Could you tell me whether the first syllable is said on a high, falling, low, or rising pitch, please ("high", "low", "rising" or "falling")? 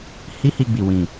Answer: high